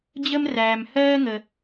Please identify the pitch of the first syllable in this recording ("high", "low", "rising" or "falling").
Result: high